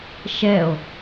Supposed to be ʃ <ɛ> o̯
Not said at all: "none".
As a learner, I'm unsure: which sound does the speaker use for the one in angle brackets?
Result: ɛ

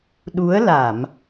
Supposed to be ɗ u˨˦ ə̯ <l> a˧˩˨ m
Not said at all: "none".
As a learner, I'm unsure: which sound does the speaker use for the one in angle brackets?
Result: l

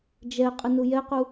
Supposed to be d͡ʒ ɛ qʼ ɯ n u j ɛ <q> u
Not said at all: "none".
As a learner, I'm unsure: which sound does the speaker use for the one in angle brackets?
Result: q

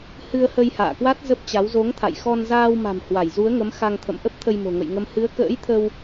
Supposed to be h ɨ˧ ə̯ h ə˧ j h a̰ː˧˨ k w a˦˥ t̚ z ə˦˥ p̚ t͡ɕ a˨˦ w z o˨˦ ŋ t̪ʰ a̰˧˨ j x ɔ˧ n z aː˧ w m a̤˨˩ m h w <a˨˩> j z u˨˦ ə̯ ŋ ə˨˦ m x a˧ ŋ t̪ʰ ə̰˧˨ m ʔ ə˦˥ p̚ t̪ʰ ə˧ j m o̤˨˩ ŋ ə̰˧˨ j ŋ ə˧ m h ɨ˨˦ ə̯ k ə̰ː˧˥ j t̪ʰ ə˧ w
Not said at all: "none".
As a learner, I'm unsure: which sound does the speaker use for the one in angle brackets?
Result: a˧˩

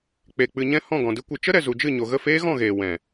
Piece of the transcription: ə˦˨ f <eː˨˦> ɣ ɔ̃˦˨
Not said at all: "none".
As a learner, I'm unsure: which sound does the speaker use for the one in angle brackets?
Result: eː˦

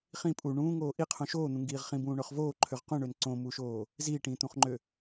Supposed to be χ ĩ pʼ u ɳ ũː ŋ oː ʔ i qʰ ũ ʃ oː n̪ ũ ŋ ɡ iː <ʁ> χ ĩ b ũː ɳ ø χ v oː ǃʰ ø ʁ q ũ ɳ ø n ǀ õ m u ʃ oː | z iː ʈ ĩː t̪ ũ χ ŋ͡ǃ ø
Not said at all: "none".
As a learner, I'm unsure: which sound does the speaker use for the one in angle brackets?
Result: ʁ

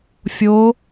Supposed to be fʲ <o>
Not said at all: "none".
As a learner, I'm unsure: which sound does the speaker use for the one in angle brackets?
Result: o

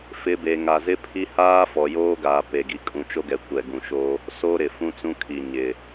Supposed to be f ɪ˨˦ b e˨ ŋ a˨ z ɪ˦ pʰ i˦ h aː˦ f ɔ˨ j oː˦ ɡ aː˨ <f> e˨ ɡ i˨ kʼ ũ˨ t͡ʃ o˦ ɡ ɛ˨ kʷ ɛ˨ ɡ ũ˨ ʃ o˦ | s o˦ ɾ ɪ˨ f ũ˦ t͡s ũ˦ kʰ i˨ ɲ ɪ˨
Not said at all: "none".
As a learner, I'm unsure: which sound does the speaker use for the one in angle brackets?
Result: p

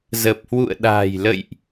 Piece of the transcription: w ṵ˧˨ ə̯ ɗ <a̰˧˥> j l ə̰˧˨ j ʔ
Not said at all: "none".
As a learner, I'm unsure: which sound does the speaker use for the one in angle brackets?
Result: a̤˨˩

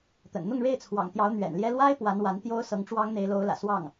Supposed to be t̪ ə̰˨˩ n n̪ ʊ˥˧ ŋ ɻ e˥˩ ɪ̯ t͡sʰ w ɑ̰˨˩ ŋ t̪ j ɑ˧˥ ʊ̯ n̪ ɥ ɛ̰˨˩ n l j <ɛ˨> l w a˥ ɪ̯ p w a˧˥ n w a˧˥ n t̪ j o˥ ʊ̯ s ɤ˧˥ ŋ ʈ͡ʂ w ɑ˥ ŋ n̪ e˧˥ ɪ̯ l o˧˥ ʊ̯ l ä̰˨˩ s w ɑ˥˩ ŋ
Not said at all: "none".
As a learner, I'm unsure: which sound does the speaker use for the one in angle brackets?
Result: ɛ˥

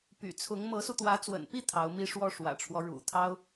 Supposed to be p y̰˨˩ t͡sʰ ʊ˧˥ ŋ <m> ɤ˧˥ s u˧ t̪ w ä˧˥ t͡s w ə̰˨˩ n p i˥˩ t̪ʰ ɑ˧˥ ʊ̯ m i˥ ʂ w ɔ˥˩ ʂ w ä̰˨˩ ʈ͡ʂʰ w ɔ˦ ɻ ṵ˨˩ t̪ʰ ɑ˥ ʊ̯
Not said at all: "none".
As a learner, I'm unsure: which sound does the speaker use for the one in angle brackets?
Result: m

